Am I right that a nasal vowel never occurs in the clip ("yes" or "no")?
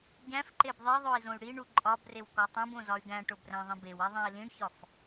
no